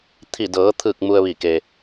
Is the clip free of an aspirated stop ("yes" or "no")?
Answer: no